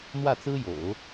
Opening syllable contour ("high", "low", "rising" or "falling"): falling